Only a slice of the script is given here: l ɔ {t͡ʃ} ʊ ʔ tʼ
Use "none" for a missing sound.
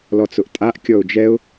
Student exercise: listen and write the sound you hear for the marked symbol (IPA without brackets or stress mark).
t͡s